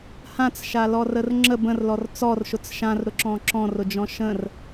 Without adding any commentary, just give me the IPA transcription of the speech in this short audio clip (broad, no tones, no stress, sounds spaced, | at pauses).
h ã t͡s ʃ a l ɔ r ə r ŋ͡ǁ ə b ə̃ r l ɔ r t͡s ɔ r ʃ ʊ t͡s ʃ ã r ɾ ʊ ǁ ɔ̃ ǁ ɔ̃ r ʊ d͡ʒ ɔ̃ ʃ ə̃ r